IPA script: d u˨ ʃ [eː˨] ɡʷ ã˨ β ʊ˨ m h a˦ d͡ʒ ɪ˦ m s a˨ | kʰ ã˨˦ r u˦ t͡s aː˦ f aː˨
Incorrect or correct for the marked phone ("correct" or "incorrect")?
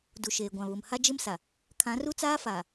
correct